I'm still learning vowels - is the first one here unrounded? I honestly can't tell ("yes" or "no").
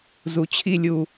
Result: no